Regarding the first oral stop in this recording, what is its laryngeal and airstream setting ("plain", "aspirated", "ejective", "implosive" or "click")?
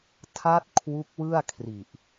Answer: aspirated